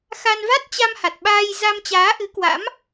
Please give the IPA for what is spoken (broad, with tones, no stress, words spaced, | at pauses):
xa˧n va˦˥t̚t͡ɕa˧mha˨˩t̚ɓaː˧j za˧mt͡ɕaː˨˦ʔɨ˨˦kwa̰˧˥m